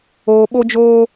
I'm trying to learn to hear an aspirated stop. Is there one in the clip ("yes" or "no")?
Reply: no